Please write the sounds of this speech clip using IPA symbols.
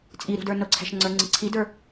t͡sʼiɾṳ də˞nʊǀʰæ̤ʃ ŋ͡ǀə˞ŋ͡ǀɪǀʰidə˞

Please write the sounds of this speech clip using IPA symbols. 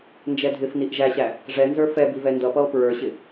nd͡ʒɛdʱɪfniʔ ʒæɕæ | ʐɛnzə˞ fɛbivɛ ndʌpʌo̯ pɹə˞ɕɪ

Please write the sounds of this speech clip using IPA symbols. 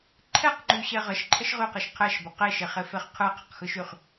ǃʰɛqŋ͡ǃyɕɛ ʁəʃǃʰəʃ ʁyqɯʃ qʰɛʃbə qeʃeχefeχ qʰɯqʰəqxɯʃyχ

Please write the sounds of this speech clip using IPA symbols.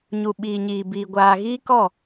ɲu˨ɓiː˨ɲiː˨biː˨ ɡʷaː˨ɣiː˦kɔ˦˨

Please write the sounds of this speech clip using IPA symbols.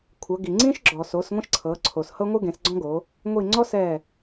kʷʰɤ˩˧ɡi˩ ŋ͡ǀĩ˦ʃɡ͡ǁɔ˩ so˩˧s ŋʷẽ˦ʃǀʰɤː˩˧ ǀʰo˩s hɤ˦ŋʷɯ˦ ɡẽ˩˧sɡ͡ǀɔ̃˦ɡo˩˧ | ŋʷi˧˩ ŋ͡ǀɔ˦ sɛː˧˩

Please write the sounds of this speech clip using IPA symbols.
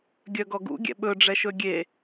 ɡʲœɡɔɡṵ ɡʲɛ̰ɓɵɖ͡ʐɛʃɵ ɡʲe

